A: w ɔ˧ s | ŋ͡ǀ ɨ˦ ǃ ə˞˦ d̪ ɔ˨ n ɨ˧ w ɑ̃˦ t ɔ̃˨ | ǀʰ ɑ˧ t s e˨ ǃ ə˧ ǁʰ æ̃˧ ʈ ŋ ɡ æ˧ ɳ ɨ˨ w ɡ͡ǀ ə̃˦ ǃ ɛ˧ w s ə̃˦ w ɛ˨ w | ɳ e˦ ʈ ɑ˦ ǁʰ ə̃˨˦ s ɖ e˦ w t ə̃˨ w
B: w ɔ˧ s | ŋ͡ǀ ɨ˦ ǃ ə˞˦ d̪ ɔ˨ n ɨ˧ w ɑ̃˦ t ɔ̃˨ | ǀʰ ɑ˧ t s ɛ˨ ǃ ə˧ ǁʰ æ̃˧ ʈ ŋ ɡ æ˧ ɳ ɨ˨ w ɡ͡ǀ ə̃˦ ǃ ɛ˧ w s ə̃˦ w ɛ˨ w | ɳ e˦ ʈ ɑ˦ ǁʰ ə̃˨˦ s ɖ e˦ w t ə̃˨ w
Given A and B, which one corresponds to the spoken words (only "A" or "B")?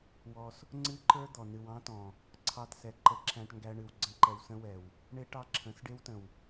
B